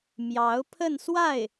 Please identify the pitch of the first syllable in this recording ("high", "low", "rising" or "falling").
rising